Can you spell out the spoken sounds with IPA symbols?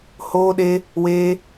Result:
hoː˦ɗe˦ | weː˦

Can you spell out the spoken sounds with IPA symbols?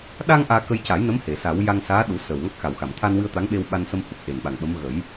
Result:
ɗa˧ŋ ʔaː˧kə˧jca˨˩˦jnə˧˥m he˨˩˨sa˨˩˦w ja˧ŋsaː˧˥ ɗu˨˩˦ səː˨˩wŋa˦˥k̚xa˨˩wxa˨˩˨m t̪ʰa˧nwɨ˧ə̯ t̪a˧˥ŋɓe˧wɓa˧n sə˧mhu˨˩k̚ʔe˨˩nɓa˨˩ŋ ɓə˧˥m ɣə˨˩˦j

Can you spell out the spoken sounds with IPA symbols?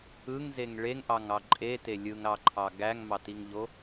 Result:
ɯŋzeŋ ɭeŋʔɑŋɑ ǃʼete lʲɯŋɾɑǃʰɑ ɡæŋmɑtiŋʎo

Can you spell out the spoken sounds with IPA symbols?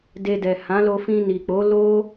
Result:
de˧dɛ˨ hã˨˦lo˧ fĩ˧ni˨k͡po˨˦ lo˦

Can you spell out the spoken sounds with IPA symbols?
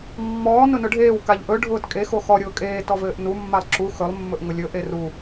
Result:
mːɔː nʊnʊɖʱeːw kaʎʔɵ ɖʱʊːtkʼe xoxɔ ɾʲʊːkʼeː tɔvɘːʔnu mːalˠǁu xɵlˠ mːɵʔŋʊlʲɵ ʔeru

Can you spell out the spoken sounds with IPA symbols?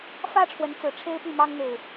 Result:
fä˦ ʈ͡ʂʰwə˨˦nt͡sɹ̩˨˩ ʈ͡ʂʰe˦ɪ̯py˥˨mɑ˦ŋ n̪e˨˩ɪ̯

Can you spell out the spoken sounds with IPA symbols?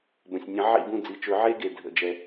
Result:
bə̃˩sʲnʲə̃˨˩˦ ʕḭ˦˨bũ˦˨d͡zi˩˧˩t͡ʃɵ˨˩˦ ʕe˦ɡe˩dʱə̰˩d͡ʒɛ˩

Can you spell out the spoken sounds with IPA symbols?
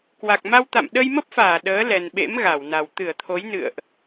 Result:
kwa˨˩k̚ma˧wt̪a̰˧˨m ɗə˧jmə˦˥p̚faː˧˩ ɗəː˨˦ lɛ˨˩nɓḛ˧˥mɣa˧˩wna˨˩w t̪ɨ˧˩ə̯t̪ʰo˨˦jnɨ̰˧˨ə̯ʔ

